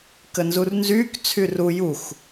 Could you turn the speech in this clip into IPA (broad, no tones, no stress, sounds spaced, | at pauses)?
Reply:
k ə n z u r n z yː k t͡sʰ y r u j u x